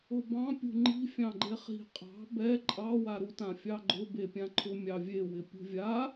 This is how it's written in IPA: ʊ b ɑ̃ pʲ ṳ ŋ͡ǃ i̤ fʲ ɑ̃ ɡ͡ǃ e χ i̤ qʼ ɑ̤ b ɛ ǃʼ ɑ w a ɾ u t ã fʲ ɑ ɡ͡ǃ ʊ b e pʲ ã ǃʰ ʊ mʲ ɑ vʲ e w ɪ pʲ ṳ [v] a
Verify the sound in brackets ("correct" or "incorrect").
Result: incorrect